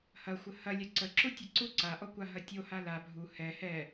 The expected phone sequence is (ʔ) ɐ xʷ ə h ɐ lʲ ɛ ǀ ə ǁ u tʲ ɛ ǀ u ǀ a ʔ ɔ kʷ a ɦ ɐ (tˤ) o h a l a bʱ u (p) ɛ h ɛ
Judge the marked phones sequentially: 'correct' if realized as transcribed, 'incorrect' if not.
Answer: incorrect, incorrect, incorrect

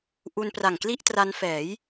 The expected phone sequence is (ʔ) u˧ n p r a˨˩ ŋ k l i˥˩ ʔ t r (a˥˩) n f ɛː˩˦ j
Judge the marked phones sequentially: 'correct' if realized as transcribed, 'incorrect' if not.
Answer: correct, incorrect

